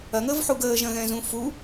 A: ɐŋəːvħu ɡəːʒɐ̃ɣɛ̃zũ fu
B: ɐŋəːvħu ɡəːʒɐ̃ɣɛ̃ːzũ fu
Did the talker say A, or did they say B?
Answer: A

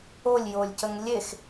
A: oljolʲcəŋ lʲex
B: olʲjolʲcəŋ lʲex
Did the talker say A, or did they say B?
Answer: B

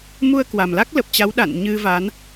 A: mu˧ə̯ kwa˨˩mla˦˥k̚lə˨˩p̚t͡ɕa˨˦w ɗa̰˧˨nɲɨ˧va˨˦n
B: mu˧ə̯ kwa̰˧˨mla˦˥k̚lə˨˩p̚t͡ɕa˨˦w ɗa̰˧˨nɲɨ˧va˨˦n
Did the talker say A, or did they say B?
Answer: A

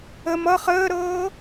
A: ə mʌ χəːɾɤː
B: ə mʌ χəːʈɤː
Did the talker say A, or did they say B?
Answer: A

